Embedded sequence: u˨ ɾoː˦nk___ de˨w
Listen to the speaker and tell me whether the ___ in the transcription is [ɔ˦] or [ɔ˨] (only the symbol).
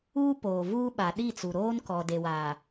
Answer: ɔ˨